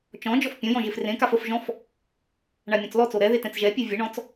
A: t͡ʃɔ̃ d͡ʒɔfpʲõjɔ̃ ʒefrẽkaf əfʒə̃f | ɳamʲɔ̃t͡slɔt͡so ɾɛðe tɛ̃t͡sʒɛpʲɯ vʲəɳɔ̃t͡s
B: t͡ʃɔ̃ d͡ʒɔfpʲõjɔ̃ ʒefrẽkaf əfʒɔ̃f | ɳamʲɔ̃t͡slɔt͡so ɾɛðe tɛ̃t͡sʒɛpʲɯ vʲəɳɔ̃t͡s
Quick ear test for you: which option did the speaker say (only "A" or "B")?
B